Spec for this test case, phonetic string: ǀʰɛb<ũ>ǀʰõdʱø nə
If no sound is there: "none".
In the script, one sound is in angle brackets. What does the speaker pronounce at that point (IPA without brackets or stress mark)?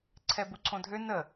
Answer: u